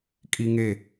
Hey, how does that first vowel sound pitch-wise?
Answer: high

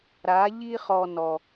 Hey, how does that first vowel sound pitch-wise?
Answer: rising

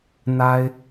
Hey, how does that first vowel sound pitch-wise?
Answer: high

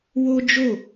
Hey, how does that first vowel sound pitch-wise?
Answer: high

